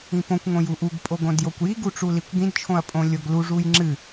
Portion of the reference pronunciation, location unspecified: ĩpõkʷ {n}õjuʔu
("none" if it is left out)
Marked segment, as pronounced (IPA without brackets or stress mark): ŋ